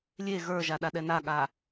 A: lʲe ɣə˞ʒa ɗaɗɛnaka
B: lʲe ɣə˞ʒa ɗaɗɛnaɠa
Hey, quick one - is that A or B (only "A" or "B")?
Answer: B